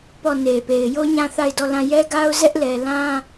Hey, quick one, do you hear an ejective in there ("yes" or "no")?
no